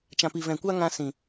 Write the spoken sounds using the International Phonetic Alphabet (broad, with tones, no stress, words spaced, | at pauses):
t͡ʃã˨pi˨vɛ̃˨ kʷa˦ŋã˧sĩ˨